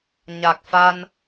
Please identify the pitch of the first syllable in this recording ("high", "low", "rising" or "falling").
low